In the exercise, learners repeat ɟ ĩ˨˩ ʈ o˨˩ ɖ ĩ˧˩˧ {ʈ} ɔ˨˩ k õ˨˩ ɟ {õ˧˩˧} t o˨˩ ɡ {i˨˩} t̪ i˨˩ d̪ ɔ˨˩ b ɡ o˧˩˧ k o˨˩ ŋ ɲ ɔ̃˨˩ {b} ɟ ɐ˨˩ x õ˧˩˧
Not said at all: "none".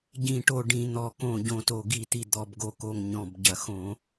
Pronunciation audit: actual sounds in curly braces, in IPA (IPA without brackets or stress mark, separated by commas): n̪, õ˨˩, i˧˩˧, b